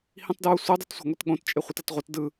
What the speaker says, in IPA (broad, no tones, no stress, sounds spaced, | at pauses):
h ĩ tˤ d ɹ o sʷ ɯ dˤ o t sʷ a̤ ŋʷ e t ɠ õ t t͡ʃʼ e χʷ i t ʌ t ʁʷ ʌ t d ɯ